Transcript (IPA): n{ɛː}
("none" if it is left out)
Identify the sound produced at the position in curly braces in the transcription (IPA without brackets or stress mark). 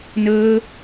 əː